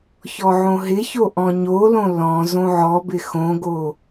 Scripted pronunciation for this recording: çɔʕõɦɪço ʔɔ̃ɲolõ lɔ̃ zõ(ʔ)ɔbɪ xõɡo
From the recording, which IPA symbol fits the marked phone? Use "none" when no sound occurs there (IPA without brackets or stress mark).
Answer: ʕ